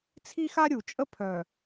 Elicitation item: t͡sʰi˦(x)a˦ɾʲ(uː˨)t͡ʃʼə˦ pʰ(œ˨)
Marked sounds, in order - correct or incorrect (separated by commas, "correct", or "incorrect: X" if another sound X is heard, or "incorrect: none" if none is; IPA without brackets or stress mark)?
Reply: correct, incorrect: u˨, correct